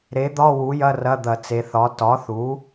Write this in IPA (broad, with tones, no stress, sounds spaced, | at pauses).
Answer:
ɾ e˩˥ d̪ ɒ˧˥˧ w u˩˥ j ɐ˧˥˧ r ɐ˧˥˧ d̪ ɐ˧˩˧ t͡s e˩˧ θ ɒ˩˥ t ɒ˩˥ θ u˩˥